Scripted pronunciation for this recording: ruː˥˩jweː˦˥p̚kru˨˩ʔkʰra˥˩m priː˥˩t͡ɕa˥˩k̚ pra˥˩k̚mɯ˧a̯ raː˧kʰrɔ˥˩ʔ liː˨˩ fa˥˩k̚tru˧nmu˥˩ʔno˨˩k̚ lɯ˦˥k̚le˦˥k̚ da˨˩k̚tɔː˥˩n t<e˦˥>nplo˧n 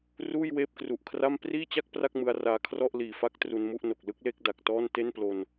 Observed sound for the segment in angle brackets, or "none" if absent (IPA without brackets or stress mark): e˥˩